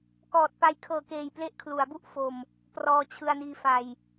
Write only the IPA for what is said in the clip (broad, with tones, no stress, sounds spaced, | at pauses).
k ɔː˨˩ t̚ p a˧ j kʰ ɤː˨˩ k eː˨˩ j p l e˦˥ ʔ kʰ l u˩˦ a̯ b u˦˥ ʔ f o˨˩ m | p r ɔː˧ t͡ɕʰ ɯ˧ a̯ n iː˧ f a˨˩ j